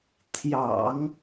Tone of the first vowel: low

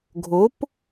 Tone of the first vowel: rising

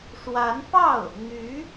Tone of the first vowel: rising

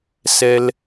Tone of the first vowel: low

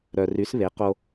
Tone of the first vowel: low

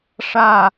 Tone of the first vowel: falling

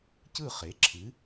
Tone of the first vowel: falling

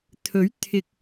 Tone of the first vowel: rising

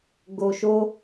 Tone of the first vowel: low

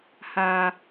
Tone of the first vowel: high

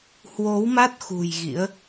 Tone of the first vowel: rising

